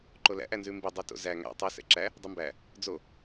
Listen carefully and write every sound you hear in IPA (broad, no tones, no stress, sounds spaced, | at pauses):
ǃ o l æ̰ ʔ æ n z ʉ m b i dˤ o t o̰ z æ ŋ æ̰ tˤ o s ɛ̰ ǁ æ | dˤ ø m b æ | d͡z o